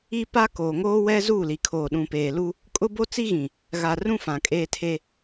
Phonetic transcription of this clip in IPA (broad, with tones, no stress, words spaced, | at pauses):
i˦ pa˦koː˨ŋoː˦wɛ˦ zuː˦˨li˨kʰoː˨ ɗũ˨peː˨ lu˦ | kʼʊ˦bo˦t͡si˦ɣĩ˨ | ɣa˨ rũ˦ fã˨kʼeː˦tʰe˦